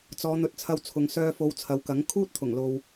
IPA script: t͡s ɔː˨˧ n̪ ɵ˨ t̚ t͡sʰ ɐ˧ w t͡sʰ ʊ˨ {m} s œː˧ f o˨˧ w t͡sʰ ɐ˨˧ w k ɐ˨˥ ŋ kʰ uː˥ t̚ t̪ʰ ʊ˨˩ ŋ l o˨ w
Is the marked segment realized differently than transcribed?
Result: yes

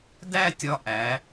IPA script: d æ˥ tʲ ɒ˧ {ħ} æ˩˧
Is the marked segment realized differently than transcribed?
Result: yes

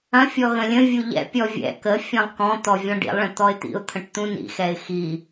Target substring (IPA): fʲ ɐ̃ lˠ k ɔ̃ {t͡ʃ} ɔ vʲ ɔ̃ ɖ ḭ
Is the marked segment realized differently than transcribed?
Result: yes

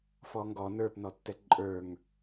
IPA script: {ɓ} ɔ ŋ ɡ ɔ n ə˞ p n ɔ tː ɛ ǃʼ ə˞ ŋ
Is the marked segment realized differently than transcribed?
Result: yes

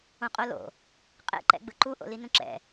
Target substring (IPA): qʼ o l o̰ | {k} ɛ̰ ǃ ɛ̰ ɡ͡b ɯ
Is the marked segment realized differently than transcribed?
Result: yes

